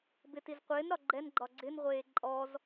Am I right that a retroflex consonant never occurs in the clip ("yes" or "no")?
yes